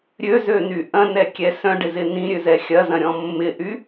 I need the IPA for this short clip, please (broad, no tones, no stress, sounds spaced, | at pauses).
ɾʲ ø z ø n y ʔ ɐ̃ n ɛ kʲ ɛ s œ̃ ɖ ɪ z ɪ n ĩ ɾʲ ø z ɛ xʲ ɐ z ɐ̃ ɾʲ ɔ̃ mː ɪ ʔ y